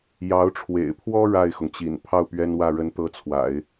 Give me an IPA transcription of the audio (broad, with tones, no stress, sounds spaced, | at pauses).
j ɑ˧˥ ʊ̯ ʈ͡ʂʰ w ḛ˨˩ ɪ̯ pʰ w ɔ˥ ɻ a˥˩ ɪ̯ x ʊ˩ ŋ t͡ɕ ḭ˨˩ n pʰ ɑ˥˩ ʊ̯ p ɥ ɛ˥ n w ä˥˩ ɻ ə˧˥ n t̪ ɤ˧˥ t͡sʰ w a̰˨˩˦ ɪ̯